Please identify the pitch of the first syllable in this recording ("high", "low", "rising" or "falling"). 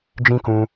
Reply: high